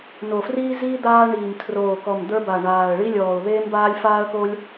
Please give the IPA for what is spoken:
n o˨˩ f r iː˥ z iː˥ d̪ aː˥ ɳ iː˨˩ m tʰ r oː˨˩ k ɔ˨˩ m d̪ ə˞˥ b a˨˩ ɳ aː˨˩ ə̯ ɭ i˥ lʲ ɔː˨˩ ʊ̯ ð eː˥ m b aː˥ lʲ f aː˥ ə̯ k o˥ lʲ

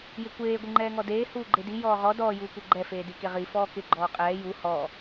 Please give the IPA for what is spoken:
j ɪ kʷ eː ɡʷ ɪ ŋ͡ǃ ɛː ŋ ɔ d eː h uː ɡ͡ǃ e d i j ɔː ʁ ɔ d ɔː j uː kʷ ɛ ɡ͡ǃ ɛ f eː d i k e ʁ i f ɔː k ɪ ɡ͡ǃ ɔː qʼ ɛː j u h ɔ

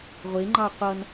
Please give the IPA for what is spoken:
ʁʷ e ŋ͡ǃ ɑ qʷ ʌ n

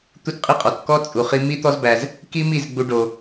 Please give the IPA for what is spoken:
t̪ u˦ t qʼ i˦ qʼ ɔ˨ t k ɔ˦ t͡sʼ u˧ χ i˦ m i˦ t̪ ɔ˦ z b æ˧ z | k i˦ m i˦˨ z ɡ͡b u˦ ɖ o˧

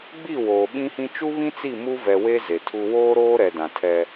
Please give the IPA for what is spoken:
ɡ͡b i˦˨ w oː˨ ɓ ĩ˦ h ĩ˦ t͡ʃ u˦ β ĩ˦ t͡s i˦˨ m u˦ v ɛ˨ w e˦ z e˨ tʰ u˦ w oː˦ ɾ oː˦ ɾ ɛ˨ d ã˨ tʰ ɛ˦

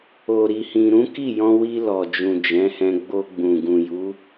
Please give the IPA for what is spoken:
o˨ ɾ i˨ h ĩ˨ ɾ ũ˨˦ k i˦˨ j ɔ̃˧ w i˧ l ɔ˨ d͡ʒ ũ˨ d͡ʒ ɛ̃˨˦ h ɛ̃˧ ɡ͡b o˧ ɡ͡b ũ˨ ɡ ũ˨ j u˨˦

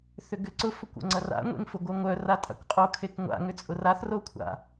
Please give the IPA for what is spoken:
θ ʏ ɡ ʏ ǀ ʊ f ʊ kʷ o̰ ŋ͡ǀ ɐ r a̰ ŋʷ ḛ ŋ f ʊ ɡʷ œ ŋʷ œ r a tʼ a̰ kʷ qʼ o kʰ e k ŋʷ a̰ ŋ ʏ t͡sʼ ʊ r a θ r o kʷʰ a̰

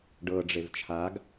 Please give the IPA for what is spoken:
ɖ ɤ ɖ͡ʐ e v t͡ʃʰ a ɡ

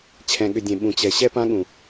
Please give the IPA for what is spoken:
t͡ɕʰ ɛ̃˨ ɠ ʏ˨ dʲ ẽ˨ ɓ ũ˨ t͡ɕ ɛ˨ ɕ ɛ˦ p ã˦ ɠ ũ˨

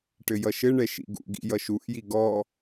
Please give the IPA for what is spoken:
ʈ ɘ j ʌ ʃ ɘ ɳ ɛ ʃ ḭ ɡ ṵ ɡ ḭ j ʌ ʃ u ʔ j i ɡ ɔ

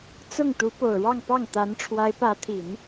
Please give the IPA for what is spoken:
t͡s ʊ˥˩ ŋ t̪ u˧˥ p o˨˩ ʊ̯ ɻ ɑ˥˧ ŋ p ɑ˥˩ ŋ t̪ a˧˥ n ʈ͡ʂʰ w a˧˥ ɪ̯ p ä˧˥ t̪ʰ i˨˩˦ n

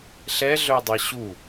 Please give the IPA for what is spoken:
ɬ ɛ ɮ œ dˤ ɛ ɕ u

